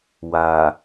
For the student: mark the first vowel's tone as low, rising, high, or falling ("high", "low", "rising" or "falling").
low